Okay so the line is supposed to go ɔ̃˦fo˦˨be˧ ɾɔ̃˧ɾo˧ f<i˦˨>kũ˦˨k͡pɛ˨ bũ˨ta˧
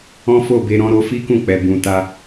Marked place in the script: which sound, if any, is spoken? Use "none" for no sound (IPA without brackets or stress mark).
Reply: i˦